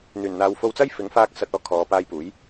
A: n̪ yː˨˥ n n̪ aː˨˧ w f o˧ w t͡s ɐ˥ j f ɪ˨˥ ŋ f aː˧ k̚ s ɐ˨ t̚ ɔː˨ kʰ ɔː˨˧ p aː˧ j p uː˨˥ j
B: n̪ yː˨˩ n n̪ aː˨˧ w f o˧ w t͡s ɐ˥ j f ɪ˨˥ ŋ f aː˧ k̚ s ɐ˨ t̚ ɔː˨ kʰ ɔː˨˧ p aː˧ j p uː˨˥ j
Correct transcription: B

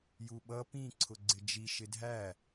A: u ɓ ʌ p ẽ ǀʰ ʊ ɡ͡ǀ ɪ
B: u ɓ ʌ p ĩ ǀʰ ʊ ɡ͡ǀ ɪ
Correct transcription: B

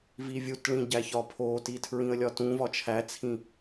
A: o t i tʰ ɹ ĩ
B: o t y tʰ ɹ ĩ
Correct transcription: A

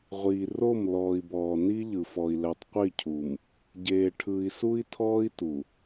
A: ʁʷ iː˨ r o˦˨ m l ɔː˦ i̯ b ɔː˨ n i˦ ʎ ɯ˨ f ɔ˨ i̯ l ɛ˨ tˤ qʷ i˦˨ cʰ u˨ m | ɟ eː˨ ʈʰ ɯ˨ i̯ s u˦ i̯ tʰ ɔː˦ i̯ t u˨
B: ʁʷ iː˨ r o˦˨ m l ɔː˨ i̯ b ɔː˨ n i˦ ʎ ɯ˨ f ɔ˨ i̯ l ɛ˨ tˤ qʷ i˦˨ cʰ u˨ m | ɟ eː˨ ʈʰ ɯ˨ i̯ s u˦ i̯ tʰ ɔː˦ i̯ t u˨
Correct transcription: B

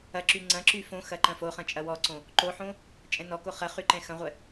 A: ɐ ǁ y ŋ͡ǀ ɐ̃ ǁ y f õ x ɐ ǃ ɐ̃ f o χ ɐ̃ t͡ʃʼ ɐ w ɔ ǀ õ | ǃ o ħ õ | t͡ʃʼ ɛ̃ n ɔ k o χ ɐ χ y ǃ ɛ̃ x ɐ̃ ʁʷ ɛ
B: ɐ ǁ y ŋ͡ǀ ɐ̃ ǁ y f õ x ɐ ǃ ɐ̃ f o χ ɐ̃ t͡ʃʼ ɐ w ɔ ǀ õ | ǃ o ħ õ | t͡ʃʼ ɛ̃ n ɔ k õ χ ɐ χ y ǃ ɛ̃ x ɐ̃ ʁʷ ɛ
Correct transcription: A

